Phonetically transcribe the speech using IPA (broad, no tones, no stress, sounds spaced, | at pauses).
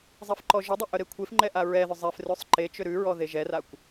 zˤ ɛ f ǃ ɔ ʒ ʏ dˤ ʏ ʔ œ ɾ e kʷʰ e f ŋ͡ǃ ɛ ʔ a ɹ ɛ ð ʏ zˤ ɛ f r ʉ sˤ ǃ e t͡ʃ ʏ ɾ ʉ ɹ ɔ ð e ʒ ɛ r a kʷ